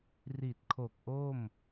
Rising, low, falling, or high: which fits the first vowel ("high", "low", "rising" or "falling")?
low